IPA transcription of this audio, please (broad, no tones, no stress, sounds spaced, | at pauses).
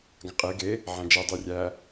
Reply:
ɡ ã qʼ e ɡ e | ʕ æ̃ d͡ʒ e dˤ y rʲ æ